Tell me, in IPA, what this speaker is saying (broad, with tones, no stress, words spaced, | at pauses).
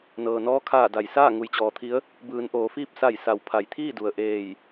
nɤː˩nɔː˧˥ kʰaː˧˩ da˩jsaː˥˨ ŋu˩˧jt͡ɕɔː˩˧t̪ʰi˧˥ə̯ | bɯː˩˧n ʔoː˩˧fiː˥˨p̚ sa˧˩jsa˩˧w pʰa˩jt̪ʰiː˥˨du˩ə̯ ʔeː˧˩j